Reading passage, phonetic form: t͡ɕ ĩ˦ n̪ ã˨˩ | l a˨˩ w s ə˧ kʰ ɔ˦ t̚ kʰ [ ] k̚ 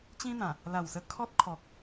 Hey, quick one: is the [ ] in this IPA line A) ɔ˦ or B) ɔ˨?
B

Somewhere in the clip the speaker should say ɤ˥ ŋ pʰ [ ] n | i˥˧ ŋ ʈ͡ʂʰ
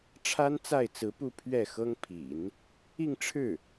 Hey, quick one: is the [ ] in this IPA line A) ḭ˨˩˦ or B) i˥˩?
A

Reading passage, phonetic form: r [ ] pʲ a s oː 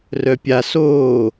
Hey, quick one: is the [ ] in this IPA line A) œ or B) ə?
A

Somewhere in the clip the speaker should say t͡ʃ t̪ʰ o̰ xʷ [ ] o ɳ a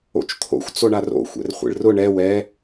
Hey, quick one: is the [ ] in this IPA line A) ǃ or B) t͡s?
B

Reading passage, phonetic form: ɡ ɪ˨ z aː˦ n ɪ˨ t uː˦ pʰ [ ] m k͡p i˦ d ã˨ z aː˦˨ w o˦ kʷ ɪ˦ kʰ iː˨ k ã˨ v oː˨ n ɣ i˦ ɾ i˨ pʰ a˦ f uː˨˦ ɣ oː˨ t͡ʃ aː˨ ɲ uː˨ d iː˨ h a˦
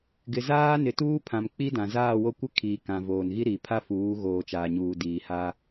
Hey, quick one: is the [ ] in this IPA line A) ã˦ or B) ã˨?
B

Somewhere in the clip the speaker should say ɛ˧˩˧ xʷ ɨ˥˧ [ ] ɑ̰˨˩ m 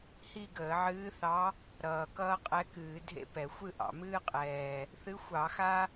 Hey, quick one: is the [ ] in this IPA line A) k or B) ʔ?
B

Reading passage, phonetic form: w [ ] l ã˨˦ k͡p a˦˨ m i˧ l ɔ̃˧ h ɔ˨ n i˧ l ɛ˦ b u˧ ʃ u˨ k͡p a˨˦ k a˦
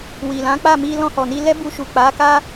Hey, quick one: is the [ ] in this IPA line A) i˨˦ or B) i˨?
B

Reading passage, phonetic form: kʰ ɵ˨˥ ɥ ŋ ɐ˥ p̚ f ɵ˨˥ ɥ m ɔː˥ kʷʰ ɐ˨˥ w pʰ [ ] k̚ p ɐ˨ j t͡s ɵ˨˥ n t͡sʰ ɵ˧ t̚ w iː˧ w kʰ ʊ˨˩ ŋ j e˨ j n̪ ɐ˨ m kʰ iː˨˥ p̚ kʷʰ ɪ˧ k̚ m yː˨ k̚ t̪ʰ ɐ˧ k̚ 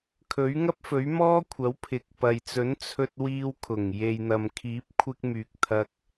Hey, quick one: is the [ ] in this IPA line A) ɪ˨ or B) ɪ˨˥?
A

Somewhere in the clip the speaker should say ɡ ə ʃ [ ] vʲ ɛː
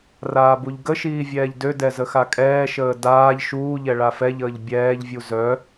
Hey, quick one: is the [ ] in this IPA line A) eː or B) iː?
B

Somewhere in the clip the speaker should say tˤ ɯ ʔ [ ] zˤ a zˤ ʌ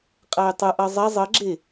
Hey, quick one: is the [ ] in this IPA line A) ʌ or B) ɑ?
A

